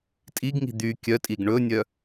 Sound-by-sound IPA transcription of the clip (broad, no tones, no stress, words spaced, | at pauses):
tʼiɡŋi̤ d̪y kʲœtʼiɡ ɳɵnʲœ